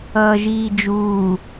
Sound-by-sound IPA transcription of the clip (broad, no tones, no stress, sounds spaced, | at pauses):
ʌː ʒ iː d͡ʒ uː